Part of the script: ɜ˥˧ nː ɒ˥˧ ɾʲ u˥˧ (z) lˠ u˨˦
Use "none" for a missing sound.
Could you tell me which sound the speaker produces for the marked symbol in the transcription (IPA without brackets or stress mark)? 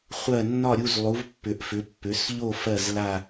z